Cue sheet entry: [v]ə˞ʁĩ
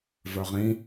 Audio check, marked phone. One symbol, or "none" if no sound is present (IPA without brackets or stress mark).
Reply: v